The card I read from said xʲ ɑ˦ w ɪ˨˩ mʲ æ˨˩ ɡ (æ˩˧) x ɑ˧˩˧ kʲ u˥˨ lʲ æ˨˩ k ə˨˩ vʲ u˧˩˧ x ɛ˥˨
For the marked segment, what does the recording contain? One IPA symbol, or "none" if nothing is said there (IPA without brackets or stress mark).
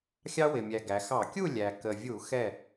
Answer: æ˩˧